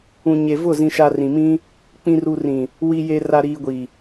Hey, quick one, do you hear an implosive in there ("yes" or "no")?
no